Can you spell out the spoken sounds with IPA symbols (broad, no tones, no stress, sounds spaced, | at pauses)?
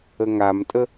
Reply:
ə ŋ a m tʼ ə